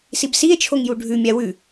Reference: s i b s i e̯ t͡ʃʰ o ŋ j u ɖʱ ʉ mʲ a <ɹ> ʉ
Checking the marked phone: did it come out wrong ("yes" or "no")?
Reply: yes